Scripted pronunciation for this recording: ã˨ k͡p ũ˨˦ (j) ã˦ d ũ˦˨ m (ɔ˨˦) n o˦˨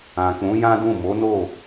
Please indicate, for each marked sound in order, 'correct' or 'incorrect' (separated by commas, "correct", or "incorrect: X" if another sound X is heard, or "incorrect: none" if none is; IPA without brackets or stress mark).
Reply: correct, incorrect: o˨˦